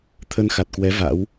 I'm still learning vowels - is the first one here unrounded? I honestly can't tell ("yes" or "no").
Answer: yes